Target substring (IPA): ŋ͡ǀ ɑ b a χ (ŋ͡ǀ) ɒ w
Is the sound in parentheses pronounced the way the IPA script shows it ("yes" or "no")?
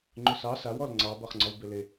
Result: yes